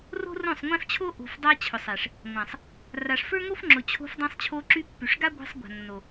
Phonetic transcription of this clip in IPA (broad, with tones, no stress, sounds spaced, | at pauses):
r o̤˦ r õ˦˨ sˤ ŋʷ ɛ̃˦ f t͡ɕʰ o˦ ʔ o̤˨ f dˤ a˧ t͡ɕʰ ʊ˨ sˤ ɛ˨ ʂ | ŋʷ ã˨ sˤ | r a˨ ʂ f ə˞˦ ŋ o˦ f ŋ͡ǁ ʊ˨ t͡ɕʰ o̤˧ f dˤ ɛ̃˧ sˤ t͡ɕʰ o˧ ǁ y˧ pː y˨ ʂ ɡ a˦ ɡʷ ɛ̤˧ sˤ ɡʷ a̤˨ nː o˨